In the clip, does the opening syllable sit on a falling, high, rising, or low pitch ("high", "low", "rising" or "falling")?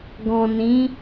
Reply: low